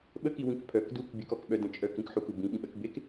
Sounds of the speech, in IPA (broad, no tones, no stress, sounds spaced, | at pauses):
ɓ ə k i w ĩ k pʰ œ k d u k bʲ ɘ k ɔ k ɓ œ d ə̃ t͡ʃʼ œ k ĩ k ħ u k u b ĩ ɓ ĩ ɓ ɜ k b e k